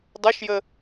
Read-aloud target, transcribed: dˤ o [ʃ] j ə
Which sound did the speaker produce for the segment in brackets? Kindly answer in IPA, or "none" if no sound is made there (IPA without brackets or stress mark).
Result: ʃ